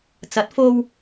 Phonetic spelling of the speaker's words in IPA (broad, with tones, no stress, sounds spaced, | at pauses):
t͡s ɐ˨˥ t̚ f o˧ w